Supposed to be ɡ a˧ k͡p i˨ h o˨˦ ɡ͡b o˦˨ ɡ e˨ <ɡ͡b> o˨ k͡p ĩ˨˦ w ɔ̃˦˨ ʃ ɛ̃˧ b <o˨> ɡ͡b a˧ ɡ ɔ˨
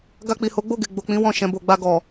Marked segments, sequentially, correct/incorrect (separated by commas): correct, correct